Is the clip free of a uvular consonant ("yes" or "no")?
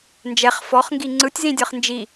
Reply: no